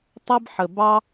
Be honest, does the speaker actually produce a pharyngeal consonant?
yes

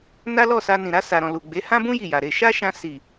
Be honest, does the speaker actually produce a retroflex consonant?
no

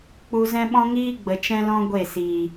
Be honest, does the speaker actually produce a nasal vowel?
yes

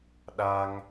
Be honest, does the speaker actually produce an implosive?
yes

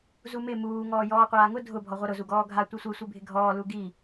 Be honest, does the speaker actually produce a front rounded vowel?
no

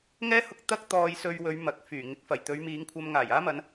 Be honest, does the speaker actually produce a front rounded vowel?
yes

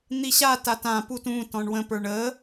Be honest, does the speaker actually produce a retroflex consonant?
yes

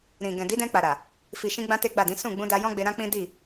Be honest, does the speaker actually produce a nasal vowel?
yes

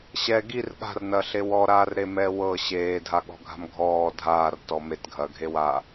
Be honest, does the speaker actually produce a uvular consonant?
no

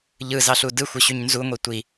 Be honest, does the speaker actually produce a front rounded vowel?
yes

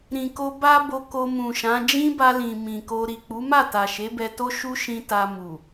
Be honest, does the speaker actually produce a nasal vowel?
yes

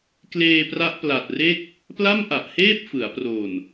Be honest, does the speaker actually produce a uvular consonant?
no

